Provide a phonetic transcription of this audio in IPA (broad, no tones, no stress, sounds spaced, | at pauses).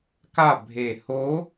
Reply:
k a bʱ e h o